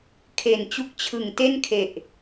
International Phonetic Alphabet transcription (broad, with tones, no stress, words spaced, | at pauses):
kʰe˨˩nt͡ɕu˦˥k̚t͡ɕʰɯ˨˩ŋ te˥˩nkʰe˨˩ʔ